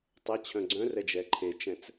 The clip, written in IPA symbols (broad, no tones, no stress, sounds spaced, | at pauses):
tˤ ɛ t͡ɕʰ œ̃ ɡ͡ǀ œ̃ r ɛ d͡ʒ ɛ ǃʰ e t͡ʃ ɛ̃ t͡s